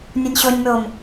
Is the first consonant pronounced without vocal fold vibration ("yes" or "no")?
no